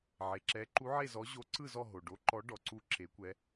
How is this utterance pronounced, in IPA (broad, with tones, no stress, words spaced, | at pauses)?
ʕe˩ǁɛ˨˦ ǃu˨˦ʕe˦˨zɔ˨˦ ʑo˨˦ǀɯ˦˨zɔ˦˨ ɦo˩ɖo˨˦ǃɔ˨˦ ɖɔ˩ǀu˦˨ ǁe˨˦kʷɛ˨˦